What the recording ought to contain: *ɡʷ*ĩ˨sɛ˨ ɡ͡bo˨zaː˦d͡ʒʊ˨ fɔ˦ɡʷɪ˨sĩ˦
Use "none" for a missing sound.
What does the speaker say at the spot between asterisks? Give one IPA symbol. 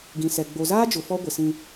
ɡ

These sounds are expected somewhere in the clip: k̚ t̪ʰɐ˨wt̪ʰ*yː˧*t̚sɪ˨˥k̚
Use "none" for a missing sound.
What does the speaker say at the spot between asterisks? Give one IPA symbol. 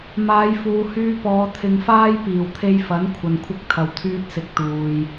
yː˧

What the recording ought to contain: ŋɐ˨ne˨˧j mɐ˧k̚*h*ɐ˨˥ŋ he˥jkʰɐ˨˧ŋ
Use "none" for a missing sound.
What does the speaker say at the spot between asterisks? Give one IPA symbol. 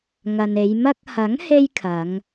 h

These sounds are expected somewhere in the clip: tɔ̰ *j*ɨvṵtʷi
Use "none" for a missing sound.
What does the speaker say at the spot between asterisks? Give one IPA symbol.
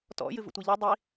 j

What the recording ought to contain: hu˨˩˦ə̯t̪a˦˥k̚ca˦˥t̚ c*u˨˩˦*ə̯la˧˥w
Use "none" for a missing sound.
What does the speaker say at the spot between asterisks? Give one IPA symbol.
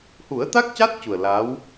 u˨˩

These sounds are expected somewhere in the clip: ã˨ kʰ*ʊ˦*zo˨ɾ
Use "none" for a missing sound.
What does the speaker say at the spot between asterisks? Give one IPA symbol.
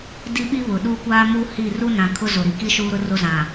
ʊ˦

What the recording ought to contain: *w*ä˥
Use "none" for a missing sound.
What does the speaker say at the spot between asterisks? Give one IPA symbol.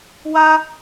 w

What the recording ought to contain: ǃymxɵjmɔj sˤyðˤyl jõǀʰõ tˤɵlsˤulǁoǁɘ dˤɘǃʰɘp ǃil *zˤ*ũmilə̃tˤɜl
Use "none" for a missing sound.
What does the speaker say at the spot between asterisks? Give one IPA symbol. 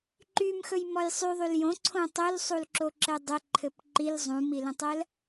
zˤ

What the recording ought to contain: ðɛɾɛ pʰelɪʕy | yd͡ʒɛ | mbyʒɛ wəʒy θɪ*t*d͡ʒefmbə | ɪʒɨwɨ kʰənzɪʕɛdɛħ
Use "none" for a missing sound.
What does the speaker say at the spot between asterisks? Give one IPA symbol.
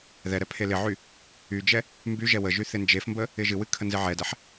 n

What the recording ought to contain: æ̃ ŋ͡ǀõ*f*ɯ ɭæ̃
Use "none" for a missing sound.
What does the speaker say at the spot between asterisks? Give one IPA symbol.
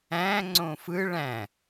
f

